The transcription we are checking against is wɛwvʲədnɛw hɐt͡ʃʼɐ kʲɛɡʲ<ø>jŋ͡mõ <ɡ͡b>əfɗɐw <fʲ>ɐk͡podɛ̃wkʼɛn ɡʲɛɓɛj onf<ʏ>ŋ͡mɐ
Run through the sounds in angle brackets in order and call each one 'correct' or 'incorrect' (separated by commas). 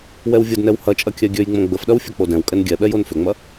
correct, correct, correct, correct